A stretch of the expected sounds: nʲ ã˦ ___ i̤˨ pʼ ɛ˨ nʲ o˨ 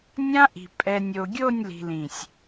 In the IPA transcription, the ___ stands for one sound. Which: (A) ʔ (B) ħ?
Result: A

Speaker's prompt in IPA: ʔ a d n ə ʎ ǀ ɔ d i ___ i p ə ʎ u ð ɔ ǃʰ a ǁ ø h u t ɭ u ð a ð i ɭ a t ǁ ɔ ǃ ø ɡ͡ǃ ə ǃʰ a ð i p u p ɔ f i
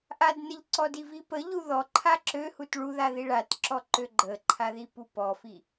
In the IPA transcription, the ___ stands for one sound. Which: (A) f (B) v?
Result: B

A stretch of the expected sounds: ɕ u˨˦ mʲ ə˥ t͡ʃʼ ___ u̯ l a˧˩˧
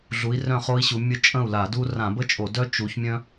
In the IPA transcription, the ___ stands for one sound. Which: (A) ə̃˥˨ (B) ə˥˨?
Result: A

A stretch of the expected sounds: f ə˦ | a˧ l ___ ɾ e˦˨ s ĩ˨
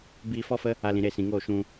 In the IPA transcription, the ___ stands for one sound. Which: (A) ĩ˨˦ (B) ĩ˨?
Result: B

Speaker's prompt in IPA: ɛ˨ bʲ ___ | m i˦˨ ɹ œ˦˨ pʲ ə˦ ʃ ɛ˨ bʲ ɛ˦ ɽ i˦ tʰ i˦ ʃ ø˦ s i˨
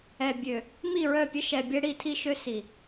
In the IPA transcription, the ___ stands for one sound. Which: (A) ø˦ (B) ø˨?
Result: B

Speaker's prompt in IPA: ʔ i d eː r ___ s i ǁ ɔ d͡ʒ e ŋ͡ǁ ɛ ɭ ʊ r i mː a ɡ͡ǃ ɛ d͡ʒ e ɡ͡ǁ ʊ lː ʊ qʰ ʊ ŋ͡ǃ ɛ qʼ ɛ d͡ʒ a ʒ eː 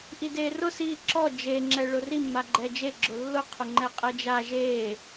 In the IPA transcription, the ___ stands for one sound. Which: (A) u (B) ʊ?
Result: B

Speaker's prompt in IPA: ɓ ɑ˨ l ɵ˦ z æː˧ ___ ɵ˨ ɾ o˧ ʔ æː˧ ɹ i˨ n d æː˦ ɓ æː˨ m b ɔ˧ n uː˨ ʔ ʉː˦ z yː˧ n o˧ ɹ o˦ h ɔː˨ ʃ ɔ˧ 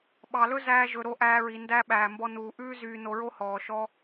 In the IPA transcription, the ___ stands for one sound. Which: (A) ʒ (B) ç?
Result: A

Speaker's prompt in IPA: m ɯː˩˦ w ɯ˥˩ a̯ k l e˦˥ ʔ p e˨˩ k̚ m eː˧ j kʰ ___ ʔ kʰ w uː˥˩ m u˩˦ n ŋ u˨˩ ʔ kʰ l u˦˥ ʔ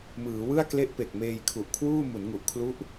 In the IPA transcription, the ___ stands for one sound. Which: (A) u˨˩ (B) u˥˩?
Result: A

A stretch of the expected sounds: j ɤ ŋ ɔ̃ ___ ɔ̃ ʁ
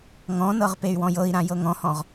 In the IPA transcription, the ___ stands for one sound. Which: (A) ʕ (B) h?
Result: B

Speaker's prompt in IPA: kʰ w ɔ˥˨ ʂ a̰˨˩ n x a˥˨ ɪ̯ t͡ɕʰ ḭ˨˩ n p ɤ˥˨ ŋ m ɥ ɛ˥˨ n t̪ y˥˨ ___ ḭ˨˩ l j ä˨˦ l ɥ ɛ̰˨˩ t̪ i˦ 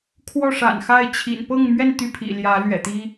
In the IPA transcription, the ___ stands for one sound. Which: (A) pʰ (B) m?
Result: A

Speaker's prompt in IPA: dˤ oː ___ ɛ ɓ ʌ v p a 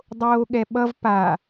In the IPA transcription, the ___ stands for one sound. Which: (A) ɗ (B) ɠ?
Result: B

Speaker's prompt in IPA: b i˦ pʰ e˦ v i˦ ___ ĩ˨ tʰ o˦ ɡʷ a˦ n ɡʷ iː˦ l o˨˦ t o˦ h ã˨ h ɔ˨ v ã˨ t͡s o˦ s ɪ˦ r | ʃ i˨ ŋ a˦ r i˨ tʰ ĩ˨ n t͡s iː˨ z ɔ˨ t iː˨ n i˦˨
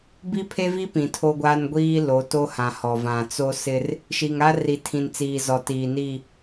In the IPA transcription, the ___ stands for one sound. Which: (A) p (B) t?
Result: A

